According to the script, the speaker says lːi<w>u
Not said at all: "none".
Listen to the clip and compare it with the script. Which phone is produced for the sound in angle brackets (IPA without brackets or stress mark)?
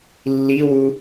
w